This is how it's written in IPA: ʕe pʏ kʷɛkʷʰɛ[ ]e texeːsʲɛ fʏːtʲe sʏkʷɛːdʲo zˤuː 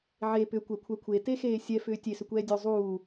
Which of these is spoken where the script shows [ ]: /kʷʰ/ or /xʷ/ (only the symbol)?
kʷʰ